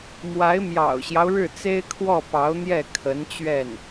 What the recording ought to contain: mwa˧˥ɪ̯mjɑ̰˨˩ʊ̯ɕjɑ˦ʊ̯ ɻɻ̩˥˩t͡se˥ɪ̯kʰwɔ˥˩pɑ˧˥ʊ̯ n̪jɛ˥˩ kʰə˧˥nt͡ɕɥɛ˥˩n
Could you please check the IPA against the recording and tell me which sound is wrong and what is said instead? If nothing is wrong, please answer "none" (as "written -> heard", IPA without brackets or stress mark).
none